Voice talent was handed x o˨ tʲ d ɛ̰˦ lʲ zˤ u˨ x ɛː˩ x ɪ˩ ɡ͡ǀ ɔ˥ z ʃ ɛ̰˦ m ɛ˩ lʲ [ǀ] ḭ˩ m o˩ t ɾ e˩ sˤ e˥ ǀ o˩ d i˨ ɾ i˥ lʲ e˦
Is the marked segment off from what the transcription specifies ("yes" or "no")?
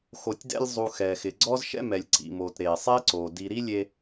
no